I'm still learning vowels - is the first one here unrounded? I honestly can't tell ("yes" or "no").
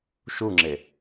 no